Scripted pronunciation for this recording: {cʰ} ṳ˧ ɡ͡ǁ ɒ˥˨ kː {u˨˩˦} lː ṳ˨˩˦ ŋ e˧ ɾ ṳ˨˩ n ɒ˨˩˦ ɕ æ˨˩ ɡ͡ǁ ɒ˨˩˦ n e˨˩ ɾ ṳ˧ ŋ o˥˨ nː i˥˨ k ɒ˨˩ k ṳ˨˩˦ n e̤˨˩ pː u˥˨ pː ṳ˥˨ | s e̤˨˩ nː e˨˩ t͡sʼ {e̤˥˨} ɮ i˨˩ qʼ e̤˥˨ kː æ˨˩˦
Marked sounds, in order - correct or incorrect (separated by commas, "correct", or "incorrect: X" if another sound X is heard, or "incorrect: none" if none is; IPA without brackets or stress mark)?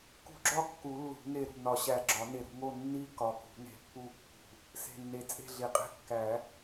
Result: incorrect: k, correct, correct